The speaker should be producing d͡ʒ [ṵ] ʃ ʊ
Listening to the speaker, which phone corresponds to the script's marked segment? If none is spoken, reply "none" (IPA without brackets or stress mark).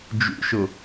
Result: ṵ